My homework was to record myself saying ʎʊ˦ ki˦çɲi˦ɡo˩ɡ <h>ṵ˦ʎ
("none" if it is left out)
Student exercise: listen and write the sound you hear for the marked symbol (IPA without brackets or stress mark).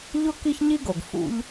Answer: f